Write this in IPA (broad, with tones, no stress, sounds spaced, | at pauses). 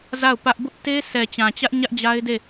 z a˦˨ ʊ̯ p ä˦ ʔ b ʊ˦ ʔ t e˦ sʰ ɛ˨ t͡ɕ ã˨ t͡ɕ ä˦ ʔ ɲ ä˦ ʔ d͡ʑ a˦ ɪ̯ d e˦˨